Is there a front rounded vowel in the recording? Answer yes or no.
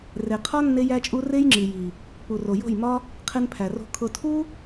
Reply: no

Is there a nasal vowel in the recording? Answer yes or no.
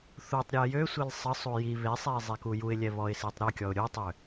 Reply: no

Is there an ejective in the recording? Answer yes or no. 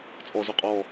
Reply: yes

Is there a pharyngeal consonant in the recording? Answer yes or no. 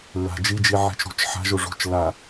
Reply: yes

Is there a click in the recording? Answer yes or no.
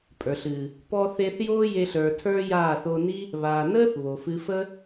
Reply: no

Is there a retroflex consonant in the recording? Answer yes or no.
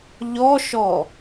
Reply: no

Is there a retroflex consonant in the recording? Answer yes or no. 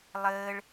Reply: yes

